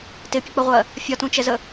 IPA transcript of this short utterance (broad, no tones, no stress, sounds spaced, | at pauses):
t ɪ pʲ ʊ k͡p ə ʁʷ ɜ | fʲ ɒ t ũ t͡ʃ ɛ z ə